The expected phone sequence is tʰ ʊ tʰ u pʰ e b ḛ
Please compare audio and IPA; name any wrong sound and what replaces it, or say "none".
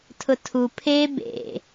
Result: none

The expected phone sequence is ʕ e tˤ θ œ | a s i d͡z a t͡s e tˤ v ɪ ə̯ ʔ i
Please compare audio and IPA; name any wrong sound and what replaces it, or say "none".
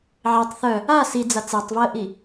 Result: none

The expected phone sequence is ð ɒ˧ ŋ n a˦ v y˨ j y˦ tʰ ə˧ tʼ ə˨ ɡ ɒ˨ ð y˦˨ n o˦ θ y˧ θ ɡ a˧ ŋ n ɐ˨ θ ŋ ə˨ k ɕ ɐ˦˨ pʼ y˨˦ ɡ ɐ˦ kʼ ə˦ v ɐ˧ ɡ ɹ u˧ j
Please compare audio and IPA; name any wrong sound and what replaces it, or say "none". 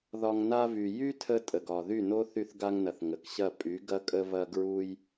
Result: none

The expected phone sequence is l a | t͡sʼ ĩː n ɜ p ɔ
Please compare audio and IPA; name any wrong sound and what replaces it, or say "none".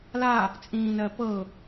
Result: ɔ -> ɤ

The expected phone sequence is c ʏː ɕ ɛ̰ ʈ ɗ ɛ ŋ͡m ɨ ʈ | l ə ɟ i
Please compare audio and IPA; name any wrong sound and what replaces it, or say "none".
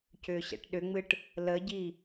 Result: ɛ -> ʏ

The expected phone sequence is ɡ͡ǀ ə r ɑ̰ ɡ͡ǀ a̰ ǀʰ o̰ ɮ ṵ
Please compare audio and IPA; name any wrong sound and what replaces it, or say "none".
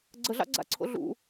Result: r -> ɮ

